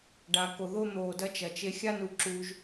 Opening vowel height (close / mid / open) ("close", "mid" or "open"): open